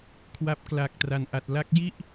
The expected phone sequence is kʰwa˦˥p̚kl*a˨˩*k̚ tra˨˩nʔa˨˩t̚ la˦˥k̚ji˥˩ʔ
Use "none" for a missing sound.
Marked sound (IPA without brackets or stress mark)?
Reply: a˨˩